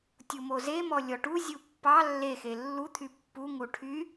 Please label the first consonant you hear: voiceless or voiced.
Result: voiceless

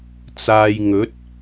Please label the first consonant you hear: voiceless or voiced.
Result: voiceless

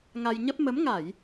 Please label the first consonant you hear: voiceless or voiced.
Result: voiced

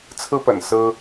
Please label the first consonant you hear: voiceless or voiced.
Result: voiceless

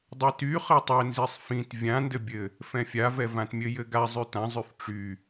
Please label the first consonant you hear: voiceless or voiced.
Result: voiced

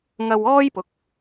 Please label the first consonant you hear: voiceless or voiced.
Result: voiced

